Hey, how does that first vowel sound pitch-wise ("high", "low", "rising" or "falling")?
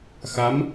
rising